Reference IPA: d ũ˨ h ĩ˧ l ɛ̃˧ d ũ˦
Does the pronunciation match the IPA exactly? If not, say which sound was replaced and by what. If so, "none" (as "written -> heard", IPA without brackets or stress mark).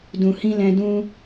none